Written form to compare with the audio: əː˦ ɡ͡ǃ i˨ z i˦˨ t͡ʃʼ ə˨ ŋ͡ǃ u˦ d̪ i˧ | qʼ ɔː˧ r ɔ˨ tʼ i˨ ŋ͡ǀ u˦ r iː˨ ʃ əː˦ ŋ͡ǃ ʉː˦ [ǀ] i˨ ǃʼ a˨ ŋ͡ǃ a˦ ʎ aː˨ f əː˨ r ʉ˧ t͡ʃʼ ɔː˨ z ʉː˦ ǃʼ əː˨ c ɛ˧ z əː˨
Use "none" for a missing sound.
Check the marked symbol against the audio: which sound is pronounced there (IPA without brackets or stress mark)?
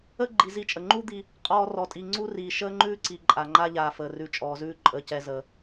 ǀ